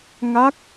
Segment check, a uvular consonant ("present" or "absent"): absent